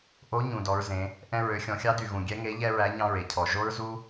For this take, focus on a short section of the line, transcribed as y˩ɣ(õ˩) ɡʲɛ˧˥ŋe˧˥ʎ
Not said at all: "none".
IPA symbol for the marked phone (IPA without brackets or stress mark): ũ˩